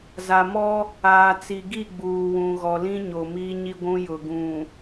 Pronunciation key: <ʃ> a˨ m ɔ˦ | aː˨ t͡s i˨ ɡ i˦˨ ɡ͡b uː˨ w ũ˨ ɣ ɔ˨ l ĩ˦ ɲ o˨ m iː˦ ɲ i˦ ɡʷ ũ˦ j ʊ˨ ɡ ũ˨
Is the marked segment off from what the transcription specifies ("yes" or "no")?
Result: yes